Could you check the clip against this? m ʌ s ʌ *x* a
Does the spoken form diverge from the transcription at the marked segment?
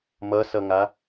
yes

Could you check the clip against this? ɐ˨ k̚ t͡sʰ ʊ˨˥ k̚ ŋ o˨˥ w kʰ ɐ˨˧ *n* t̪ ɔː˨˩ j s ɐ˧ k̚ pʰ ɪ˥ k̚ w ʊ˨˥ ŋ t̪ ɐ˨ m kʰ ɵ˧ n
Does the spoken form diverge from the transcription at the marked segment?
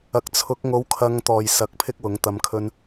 yes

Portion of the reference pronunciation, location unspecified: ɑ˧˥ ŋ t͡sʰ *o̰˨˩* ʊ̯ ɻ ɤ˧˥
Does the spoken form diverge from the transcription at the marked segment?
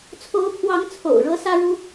no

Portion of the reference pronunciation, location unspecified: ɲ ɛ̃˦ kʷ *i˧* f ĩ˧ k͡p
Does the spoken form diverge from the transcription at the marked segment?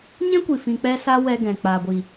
yes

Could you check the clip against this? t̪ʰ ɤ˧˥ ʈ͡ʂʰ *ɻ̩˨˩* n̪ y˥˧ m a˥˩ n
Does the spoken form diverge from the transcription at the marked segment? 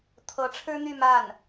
yes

